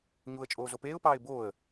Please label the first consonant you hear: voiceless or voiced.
voiced